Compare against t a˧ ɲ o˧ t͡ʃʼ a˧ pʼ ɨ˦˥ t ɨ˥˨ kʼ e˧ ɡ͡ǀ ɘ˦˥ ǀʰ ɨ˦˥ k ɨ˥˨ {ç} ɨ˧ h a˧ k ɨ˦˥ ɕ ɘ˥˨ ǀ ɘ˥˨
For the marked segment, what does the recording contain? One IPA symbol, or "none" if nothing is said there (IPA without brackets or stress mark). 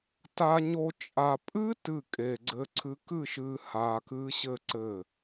ʃ